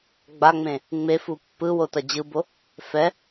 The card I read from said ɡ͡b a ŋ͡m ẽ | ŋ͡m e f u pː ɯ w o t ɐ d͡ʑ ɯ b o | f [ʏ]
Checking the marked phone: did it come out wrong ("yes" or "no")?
yes